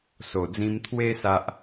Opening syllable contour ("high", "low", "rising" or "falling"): low